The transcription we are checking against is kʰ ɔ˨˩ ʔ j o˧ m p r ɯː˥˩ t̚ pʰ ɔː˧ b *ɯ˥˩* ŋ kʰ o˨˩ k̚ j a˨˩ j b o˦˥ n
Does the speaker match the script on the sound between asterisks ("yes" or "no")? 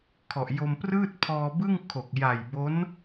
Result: yes